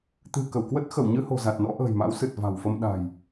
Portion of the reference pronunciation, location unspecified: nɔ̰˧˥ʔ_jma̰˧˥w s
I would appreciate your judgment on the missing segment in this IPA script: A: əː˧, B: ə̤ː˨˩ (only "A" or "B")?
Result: B